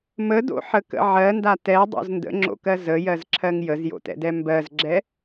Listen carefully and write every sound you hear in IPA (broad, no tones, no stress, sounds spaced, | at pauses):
m ə d o̰ ħ ə k ə̰ ʕ ɜ n d a t ɛ dˤ o̰ z n d ə̰ ŋ͡ǁ o̰ k ɜ z ə j ɜ z ǁʰ ɜ ŋ j ə z j o̰ t ɛ̰ d ɛ m b ɜ z ɡ͡ǁ ɛ